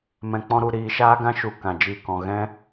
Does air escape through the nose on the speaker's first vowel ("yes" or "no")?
yes